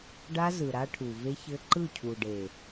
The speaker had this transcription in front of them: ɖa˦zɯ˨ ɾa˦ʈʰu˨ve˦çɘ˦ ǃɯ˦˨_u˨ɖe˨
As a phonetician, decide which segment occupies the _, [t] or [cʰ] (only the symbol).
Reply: cʰ